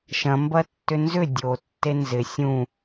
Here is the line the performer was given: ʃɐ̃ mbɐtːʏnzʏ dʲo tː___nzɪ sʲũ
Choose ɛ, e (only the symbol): e